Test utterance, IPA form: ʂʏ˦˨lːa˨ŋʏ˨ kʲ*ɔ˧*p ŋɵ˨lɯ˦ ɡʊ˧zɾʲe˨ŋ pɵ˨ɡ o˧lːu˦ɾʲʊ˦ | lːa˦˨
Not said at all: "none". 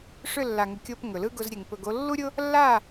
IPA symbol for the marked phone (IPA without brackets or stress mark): o˧